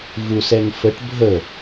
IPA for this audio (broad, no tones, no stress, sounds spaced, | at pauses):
v u s ɛ ŋ f ə ʈ bʱ ə